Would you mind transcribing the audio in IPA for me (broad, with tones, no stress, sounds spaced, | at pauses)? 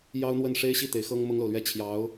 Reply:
j ɑ˥ ʊ̯ n̪ w ə˥˩ n ʂ e˥ ɪ̯ ɕ i˥˩ t̪ e˧˥ ɪ̯ x ɤ˥ ŋ m ʊ˥ ŋ l o˨ ʊ̯ l ɥ ɛ˥˩ t͡ɕʰ j ɑ˧˥ ʊ̯